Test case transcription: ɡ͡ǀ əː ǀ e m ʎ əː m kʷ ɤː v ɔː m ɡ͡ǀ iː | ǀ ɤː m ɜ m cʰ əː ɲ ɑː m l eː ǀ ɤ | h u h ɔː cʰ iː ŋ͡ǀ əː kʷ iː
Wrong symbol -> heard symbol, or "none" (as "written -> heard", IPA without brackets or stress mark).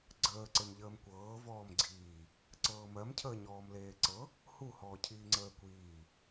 ɑː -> ɔː